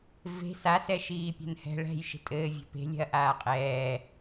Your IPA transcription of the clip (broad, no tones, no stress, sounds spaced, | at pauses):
v e̤ s a s ɛ ʃ iː pʲ ɛ̤ n h ɛ̤ ɭ ɛ̤ j ʃ e̤ tʼ ɘː vʲ e̤ p e̤ lʲ ɛ̤ ɐ̯ ʔ aː qʼ ɛː